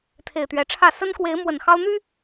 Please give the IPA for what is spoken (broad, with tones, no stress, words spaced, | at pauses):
t̪ʰe˨˩ɪ̯t̪ɥɛ˨˦ʈ͡ʂʰä˥˨ sə˦nkwe˨˦ɪ̯ mwə˨˩nxɑ˦ʊ̯ n̪y˦